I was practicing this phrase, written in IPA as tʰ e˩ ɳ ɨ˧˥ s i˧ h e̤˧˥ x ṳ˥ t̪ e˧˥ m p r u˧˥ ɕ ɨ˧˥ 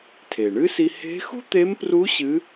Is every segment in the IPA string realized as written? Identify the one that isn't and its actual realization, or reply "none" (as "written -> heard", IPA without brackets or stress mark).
none